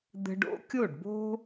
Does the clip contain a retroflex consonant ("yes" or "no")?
yes